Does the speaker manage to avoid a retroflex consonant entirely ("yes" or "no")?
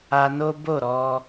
yes